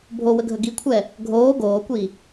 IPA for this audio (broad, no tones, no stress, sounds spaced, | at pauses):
bʱ o w ə ɡʱ ə ɡ i kʷʰ ɛ | ɡʱ oː ɡ oː kʷ i